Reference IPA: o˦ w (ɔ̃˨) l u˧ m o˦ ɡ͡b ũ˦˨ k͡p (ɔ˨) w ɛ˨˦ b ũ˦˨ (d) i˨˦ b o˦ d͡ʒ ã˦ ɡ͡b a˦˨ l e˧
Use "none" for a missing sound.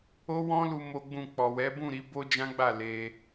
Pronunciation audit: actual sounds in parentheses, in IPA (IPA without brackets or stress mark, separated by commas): ɔ̃˦, ɔ˨, ɾ